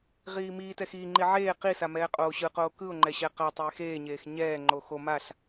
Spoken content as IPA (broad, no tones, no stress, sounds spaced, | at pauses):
ʁ iː m iː t ɛ x iː ŋ͡ǃ i ʕ eː q i s a m ɛː qʼ oː ɕ ɯ q oː k ɯ ʊ̯ ŋ͡ǃ ɛ ɕ ɛ q a tˤ eː x eː ɲ eː x ɲ ɛː ŋ͡ǃ o x o m a ɬ